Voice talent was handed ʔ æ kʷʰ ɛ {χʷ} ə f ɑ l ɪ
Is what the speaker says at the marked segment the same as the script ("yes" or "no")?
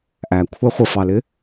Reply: yes